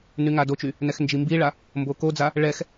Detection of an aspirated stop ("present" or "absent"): absent